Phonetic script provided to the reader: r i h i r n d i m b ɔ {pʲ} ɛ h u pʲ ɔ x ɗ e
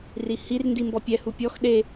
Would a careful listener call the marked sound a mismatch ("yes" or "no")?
no